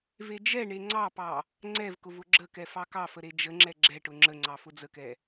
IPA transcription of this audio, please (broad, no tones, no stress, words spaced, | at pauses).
ved͡ʒɛɳe ŋ͡ǀɑpɑ | ŋ͡ǀɛvkʊv ʊɡ͡ǁəkɛ fɑkɑfə ɾed͡ʒəŋ͡ǁɛ ɡ͡ǁɛʈʊ ŋ͡ǁəŋ͡ǀɑ fʊd͡zəkɛ